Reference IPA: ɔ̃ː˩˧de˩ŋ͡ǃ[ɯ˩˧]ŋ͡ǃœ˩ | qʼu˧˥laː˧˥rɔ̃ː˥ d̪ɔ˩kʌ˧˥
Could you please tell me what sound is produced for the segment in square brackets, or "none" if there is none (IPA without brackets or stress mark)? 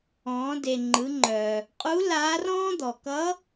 ɯ˩˧